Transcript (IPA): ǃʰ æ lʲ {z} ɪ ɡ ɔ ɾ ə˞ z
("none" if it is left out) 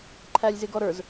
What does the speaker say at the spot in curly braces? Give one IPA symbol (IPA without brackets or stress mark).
z